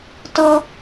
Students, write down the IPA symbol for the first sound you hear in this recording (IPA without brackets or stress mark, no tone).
t